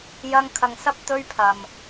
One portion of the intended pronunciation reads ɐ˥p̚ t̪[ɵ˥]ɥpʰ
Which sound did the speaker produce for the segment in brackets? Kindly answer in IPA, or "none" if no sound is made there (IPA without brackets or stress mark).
ɵ˥